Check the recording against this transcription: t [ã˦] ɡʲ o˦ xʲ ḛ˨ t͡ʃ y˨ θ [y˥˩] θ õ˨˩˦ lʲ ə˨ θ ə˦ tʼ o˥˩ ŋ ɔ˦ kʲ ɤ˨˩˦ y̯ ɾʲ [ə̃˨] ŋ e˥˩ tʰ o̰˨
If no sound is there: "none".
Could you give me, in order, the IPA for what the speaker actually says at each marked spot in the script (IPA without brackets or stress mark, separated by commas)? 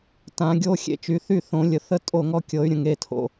ã˨˩˦, y˥˩, ə̃˨